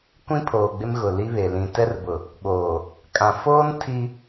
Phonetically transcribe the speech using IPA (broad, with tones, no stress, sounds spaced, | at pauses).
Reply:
kʷ ĩ˦ pʰ oː˨ ɡ͡b ɪ˦ m ɣ ʊ˨ l i˦ β e˨ l ĩ˨ t ɛ˦ r b ʊ˨ | ɓ oː˨ | kʼ ã˨ f oː˦ n tʰ i˦